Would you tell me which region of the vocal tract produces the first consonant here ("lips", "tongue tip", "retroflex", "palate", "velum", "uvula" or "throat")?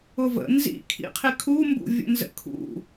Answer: lips